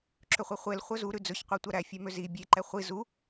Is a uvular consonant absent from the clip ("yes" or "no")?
no